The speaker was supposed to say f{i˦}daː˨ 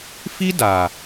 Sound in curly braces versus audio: correct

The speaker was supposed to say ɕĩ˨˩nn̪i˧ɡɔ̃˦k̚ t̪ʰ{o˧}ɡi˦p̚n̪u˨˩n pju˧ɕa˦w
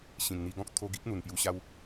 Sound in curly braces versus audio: correct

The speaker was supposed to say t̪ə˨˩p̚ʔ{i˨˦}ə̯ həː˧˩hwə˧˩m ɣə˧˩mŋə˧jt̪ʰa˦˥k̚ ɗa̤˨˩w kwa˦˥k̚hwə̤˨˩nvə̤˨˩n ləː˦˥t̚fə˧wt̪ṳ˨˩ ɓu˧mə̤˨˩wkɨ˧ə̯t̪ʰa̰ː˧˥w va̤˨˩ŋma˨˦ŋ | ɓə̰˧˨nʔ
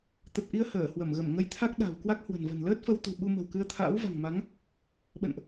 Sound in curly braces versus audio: incorrect: i˧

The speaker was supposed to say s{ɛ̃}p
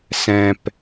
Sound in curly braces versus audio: correct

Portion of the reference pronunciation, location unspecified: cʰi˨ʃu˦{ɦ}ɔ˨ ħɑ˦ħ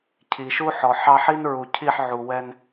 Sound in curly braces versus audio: incorrect: ħ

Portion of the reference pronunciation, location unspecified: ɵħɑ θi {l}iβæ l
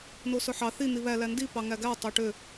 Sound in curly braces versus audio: incorrect: n̪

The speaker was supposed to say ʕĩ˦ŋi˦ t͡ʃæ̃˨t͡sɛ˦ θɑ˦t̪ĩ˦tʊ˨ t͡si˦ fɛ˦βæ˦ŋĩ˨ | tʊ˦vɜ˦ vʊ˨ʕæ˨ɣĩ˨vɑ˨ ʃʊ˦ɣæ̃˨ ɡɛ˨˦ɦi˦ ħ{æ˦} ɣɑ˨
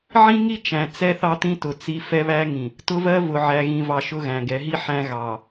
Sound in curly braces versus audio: incorrect: æ̃˦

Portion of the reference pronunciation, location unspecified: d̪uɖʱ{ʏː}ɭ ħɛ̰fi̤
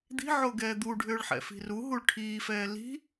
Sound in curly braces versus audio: correct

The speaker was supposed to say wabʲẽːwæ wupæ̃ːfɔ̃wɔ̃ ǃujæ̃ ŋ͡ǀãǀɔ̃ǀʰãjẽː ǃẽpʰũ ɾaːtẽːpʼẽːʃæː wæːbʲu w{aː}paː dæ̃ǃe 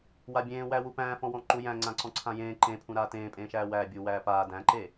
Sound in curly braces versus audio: incorrect: æː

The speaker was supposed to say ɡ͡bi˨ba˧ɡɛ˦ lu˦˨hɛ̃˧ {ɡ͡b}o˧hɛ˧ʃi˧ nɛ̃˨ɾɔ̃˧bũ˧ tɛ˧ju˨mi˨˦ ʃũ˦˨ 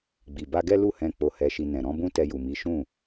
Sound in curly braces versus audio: incorrect: k͡p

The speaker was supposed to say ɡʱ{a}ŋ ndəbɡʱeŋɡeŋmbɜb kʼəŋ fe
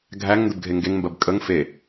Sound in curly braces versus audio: incorrect: æ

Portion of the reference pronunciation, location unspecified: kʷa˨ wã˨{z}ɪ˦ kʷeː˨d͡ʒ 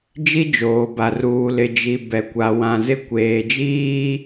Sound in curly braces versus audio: correct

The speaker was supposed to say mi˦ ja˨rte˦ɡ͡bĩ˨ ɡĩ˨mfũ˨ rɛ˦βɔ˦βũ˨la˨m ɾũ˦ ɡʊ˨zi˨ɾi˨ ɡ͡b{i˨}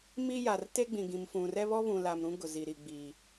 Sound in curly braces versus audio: correct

